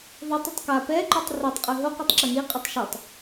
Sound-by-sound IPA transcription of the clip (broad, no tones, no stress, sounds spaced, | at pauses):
ðˤ o tˤ i tˤ k a p ɛ ǃ ʉ tˤ r ɛ tˤ qʼ ʉ ɦ o q i tˤ ǁ ɛ n i qʼ i tˤ ʃ ʉ tˤ